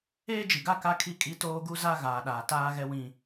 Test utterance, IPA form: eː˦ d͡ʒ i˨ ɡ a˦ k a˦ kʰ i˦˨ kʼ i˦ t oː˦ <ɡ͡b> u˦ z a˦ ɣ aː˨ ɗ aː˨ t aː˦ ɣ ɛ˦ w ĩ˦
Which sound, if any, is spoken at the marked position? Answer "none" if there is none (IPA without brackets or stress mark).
ɡ